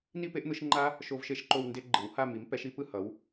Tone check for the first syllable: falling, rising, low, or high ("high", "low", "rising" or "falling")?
falling